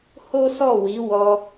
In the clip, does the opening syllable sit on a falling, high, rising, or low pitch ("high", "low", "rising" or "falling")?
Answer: high